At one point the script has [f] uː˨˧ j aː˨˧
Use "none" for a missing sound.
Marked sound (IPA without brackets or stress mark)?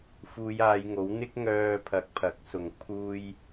f